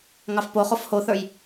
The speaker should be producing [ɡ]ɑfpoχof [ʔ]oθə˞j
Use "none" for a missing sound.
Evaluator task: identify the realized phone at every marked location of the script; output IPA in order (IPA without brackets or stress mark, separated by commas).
ŋ, h